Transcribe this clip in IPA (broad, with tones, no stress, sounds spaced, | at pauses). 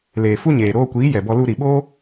l eː˨ f u˦ ɲ eː˨ ɾ oː˧ kʷ iː˨˦ j ɛ˨ b ɔ˧ l u˧ ɾ i˨ ɓ oː˦